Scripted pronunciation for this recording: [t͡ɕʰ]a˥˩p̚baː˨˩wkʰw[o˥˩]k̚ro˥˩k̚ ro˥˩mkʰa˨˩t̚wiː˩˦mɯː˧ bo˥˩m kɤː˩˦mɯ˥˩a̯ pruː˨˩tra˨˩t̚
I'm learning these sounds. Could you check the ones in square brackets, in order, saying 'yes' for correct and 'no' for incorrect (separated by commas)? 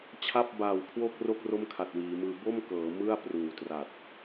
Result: yes, yes